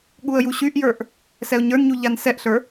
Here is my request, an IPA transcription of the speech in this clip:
ɠ u ə̯ j u ɕ y ʔ j ə˞ ʔ | s ɛ ʊ̯ ɲ ə˞ n ɲ u ʎ a n s ɛ ʔ ɬ ə˞

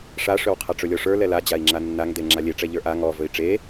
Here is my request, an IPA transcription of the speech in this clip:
ʂ a ʂ ɵ w qʰ a ʈ͡ʂ ɵ lʲ ɔ ʂ ə˞ l ɛ l a d͡ʑ a i̯ ŋ͡ǁ a nː a ŋ d e ŋ͡ǁ a lʲ e ʈ͡ʂ ɛ ʎ ə˞ ʔ a ŋ ɔ v ɵ i̯ ʈ͡ʂ e

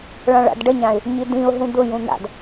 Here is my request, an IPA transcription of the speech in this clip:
ɭ ã ɭ a̰ d ɖ ə ɲ ã ɪ̯ | ɲ i d ĩ ʊ̯ ɦ ũ d̪ ʊ j ũ n̪ a̰ d

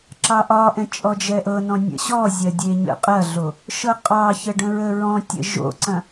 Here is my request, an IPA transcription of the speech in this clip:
ǁ ɑ ʔ ɒ ʔ ɛ̃ t͡ʃʼ ɔ d͡ʒ ɛ ʔ ɤ n ɔ̃ nʲ ə̰ ɕ ɔ zʲ ɐ dʲ e ɲ ə̰ qʼ ɐ ɮ o | ʃ ɤ qʼ ɑ ç ə ɖ ə̃ ɹ ə ɹ ɔ̃ tʲ ə̰ ʒ o̰ ǀ ɐ̃

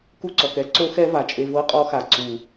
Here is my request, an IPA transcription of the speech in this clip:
k u˦ ǀ ɔ˨ k ɛ˦ ǀ o˦ x ɛ˦ v a˨ t͡ʃʼ e˨ v ɤ˦ qʼ ɔ˦ x a˨ ǀ u˨

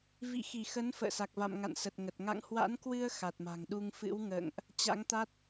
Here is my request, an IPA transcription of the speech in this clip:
v ḭ˧˨ x i˧˩ x ə˨˦ n f ə̰ː˧˨ s a˨˩ k̚ v a̰˧˨ m ŋ a̰˧˨ n s ə˨˩ t̚ ŋ ə˨˩ t̚ ŋ a̰˧˨ ŋ h w a̰˧˥ n k w ɨ˧ ə̯ x a˨˩ t̚ m a̤˨˩ ŋ ɗ u˧ ŋ f ɨ̰˧˥ w ŋ ə̰ː˧˨ ŋ ʔ | t͡ɕ a̰˧˥ ŋ t̪ a˦˥ t̚

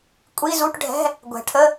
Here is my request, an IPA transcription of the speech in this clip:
kʷʼ i˧˥˧ z u˧˥˧ ʈ ɖʱ ɛ̤˧˥˧ | ɡʷ ɛ̤˨˩˦ ʈʰ ə˧˥˧

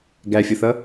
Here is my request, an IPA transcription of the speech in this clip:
ɡ æ fʲ ʌ θ ʌ

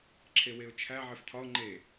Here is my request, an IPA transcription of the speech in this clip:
ǁʰ e w e ʊ̯ t͡ʃʰ æ ʕ e f tʰ ɒ ʊ̯ ŋ͡ǃ e

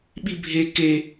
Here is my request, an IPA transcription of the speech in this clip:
ɓ i bʱ e k e

